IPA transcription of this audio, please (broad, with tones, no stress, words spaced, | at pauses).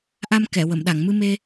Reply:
ʔa˧m kɛ˨˩˨wə˨˩˨mɗa˨˩˨ŋ mɨ˧me˧